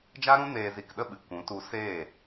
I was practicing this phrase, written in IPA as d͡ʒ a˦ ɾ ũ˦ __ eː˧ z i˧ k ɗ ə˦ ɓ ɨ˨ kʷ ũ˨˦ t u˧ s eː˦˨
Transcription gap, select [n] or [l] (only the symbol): n